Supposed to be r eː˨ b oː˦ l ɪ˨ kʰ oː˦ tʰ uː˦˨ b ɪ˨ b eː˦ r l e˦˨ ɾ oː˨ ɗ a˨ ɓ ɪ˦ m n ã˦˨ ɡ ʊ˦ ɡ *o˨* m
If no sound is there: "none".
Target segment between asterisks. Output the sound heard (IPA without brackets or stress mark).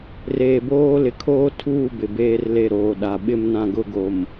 o˨